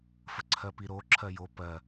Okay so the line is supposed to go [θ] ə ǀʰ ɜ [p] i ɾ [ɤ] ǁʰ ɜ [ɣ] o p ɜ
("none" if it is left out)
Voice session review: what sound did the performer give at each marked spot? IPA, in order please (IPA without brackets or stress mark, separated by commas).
f, p, o, j